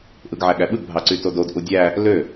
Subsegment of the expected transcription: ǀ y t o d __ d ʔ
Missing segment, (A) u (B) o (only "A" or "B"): B